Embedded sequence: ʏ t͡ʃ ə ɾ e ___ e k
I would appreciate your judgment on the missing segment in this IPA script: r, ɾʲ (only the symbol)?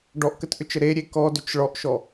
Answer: ɾʲ